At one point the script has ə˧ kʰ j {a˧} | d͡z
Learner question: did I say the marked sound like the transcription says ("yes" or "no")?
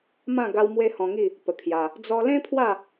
yes